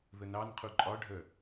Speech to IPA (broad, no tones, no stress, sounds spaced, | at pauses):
ð ə n ɑ n qʰ u ǃʼ ɒ ɖʱ œ